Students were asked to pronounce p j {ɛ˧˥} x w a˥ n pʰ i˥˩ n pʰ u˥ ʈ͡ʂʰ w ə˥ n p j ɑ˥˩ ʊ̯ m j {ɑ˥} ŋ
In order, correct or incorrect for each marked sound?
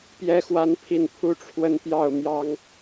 incorrect: ɛ˥, correct

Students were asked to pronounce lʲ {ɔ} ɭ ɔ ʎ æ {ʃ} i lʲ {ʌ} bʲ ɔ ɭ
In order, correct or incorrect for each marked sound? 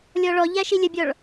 correct, correct, incorrect: ə

